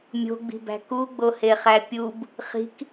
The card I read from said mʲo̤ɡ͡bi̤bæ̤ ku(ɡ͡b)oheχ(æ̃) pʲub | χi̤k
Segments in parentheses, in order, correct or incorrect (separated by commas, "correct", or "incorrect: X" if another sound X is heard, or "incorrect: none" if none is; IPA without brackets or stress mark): correct, incorrect: æ